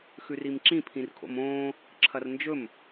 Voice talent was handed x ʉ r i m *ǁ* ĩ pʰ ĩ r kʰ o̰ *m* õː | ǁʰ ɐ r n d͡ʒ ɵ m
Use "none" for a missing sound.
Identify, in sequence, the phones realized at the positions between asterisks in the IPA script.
ǁ, m

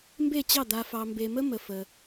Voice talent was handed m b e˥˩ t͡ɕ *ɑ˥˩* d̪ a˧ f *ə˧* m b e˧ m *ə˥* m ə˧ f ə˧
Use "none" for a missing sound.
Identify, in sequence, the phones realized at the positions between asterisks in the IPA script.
ɑ˥˩, ɑ˧, ə˥

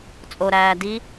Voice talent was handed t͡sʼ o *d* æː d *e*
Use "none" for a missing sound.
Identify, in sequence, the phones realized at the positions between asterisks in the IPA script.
ɾ, i

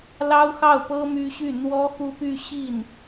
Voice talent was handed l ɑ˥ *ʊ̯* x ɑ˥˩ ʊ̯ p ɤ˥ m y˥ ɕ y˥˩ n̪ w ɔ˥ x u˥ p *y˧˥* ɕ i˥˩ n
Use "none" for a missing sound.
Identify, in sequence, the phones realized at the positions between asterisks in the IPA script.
ʊ̯, y˥˧

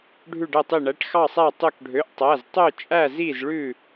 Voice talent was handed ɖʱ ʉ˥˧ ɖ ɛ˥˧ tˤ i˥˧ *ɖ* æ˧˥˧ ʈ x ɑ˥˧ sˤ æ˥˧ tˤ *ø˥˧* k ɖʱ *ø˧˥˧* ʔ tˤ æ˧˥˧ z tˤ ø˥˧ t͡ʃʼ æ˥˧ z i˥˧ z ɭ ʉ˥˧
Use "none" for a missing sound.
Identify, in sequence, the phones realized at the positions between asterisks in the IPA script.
ɳ, ø˥˧, ø˧˥˧

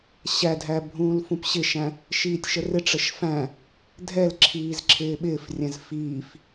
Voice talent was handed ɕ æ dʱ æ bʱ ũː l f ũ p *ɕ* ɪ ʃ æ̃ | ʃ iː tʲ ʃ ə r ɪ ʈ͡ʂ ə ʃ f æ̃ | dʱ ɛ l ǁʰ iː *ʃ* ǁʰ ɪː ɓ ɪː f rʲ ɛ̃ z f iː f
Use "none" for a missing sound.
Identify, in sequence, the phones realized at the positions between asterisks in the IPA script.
ɕ, z

